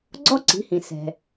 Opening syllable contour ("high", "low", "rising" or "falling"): high